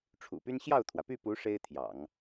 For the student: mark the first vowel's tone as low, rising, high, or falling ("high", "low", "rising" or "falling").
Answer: low